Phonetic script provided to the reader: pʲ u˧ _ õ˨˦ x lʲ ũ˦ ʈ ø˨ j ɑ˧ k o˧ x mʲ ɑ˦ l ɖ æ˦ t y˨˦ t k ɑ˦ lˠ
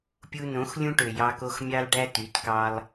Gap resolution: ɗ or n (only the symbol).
n